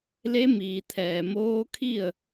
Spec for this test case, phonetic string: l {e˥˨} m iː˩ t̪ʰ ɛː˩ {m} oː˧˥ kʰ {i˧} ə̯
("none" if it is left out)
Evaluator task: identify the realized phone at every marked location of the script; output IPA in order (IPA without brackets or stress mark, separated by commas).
e˧˥, m, i˥˨